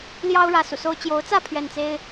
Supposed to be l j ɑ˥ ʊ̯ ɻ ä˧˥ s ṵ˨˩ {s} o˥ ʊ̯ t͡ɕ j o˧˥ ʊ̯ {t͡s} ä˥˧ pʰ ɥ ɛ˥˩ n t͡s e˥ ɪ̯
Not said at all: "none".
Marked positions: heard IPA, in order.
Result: s, t͡s

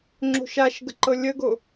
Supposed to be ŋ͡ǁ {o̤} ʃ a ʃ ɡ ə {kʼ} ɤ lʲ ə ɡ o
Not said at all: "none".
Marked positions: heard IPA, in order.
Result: o̤, ǃ

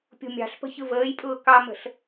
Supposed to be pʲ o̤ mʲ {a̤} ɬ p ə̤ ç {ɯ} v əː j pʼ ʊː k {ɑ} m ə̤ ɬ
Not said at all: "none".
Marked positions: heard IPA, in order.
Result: ɑ̤, ɯ, ɑ

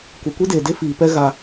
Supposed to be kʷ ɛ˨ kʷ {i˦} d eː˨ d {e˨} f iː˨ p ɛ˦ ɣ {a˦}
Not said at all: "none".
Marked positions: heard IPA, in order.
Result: i˦, e˦, a˦

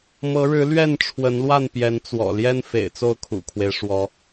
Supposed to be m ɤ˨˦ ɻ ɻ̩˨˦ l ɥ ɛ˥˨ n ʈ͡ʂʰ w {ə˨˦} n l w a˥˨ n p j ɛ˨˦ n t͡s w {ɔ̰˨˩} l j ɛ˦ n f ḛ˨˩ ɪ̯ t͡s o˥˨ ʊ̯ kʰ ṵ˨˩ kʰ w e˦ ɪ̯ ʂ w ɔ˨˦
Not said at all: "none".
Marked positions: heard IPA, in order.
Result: ə˨˦, ɔ̰˨˩

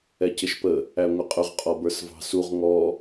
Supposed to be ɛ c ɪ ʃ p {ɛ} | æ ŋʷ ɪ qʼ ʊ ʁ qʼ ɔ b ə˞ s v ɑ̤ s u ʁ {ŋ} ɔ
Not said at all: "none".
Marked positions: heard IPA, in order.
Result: ə, ŋ

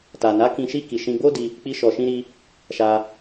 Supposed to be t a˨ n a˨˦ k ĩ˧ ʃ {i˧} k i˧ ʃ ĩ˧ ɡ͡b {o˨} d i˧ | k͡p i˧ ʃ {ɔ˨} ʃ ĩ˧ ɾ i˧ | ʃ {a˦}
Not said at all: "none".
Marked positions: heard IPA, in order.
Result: i˦, o˦, ɔ˨, a˧

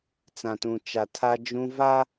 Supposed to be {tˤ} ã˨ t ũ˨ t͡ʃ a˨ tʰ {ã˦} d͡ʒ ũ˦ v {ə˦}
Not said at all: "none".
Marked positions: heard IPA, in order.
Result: t͡s, a˦, a˦

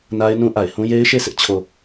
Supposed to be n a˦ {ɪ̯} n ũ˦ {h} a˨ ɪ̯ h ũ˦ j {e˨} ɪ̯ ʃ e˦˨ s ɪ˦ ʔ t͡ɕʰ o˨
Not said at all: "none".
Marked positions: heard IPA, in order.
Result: ɪ̯, ʔ, e˦

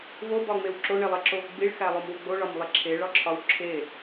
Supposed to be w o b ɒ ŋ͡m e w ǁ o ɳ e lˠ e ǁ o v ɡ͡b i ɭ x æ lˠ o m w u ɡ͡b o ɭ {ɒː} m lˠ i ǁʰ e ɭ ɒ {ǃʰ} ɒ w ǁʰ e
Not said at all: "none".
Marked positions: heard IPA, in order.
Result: ɒ, ǁʰ

